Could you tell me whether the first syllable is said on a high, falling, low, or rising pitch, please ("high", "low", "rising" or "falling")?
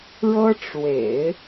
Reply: high